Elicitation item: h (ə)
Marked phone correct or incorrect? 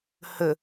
correct